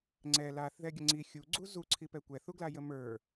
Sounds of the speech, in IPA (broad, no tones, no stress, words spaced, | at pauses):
ŋ͡ǀɛ laθðɛɡʲə ŋ͡ǀi xʲuɡ͡ǀu zuǀʰipɛ kʷɛθuɡlajə mə˞